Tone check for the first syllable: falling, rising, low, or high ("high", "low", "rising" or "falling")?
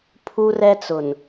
high